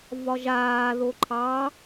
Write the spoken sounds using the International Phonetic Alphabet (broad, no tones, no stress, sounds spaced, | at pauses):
v ɒ ʒ aː ð o ǃʰ ɑ